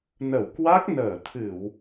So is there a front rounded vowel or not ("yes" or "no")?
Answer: no